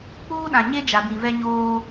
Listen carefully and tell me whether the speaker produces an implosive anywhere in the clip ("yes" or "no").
yes